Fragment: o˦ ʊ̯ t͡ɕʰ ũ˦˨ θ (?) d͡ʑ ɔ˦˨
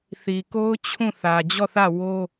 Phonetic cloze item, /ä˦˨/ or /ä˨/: ä˨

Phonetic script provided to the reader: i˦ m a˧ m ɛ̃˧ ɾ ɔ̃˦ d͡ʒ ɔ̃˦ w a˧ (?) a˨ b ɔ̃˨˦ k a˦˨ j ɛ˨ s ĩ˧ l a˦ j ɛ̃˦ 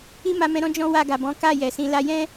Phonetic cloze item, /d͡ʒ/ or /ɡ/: ɡ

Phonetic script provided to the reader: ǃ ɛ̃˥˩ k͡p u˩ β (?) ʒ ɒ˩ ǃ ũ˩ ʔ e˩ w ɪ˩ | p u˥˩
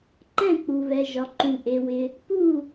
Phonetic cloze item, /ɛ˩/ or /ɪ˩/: ɛ˩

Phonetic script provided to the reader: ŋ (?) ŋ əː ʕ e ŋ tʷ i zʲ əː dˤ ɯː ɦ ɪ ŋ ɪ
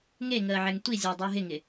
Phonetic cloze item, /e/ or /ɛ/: e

